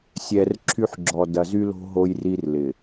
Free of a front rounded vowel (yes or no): no